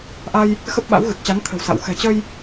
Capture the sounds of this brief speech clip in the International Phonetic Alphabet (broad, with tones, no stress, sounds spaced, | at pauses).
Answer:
ʔ a˧ j | x ə˦˥ p̚ ɓ a̰˧˥ w ɣ ɨ˨˩ k̚ t͡ɕ a˨˦ n t̪ʰ ə̤˨˩ w s a̰˧˨ w x ɛ̤˨˩ t͡ɕ ə˧ j